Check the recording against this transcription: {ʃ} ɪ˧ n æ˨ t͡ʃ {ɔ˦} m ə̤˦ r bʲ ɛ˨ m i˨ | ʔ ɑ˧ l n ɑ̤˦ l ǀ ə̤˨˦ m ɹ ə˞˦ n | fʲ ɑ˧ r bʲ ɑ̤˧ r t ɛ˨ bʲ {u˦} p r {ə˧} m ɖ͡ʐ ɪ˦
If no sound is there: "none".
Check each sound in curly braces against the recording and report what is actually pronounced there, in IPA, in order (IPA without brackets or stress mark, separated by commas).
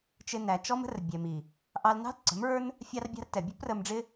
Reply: t͡ʃ, ɔ˦, ʊ˦, ə˧